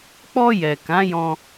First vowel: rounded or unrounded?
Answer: rounded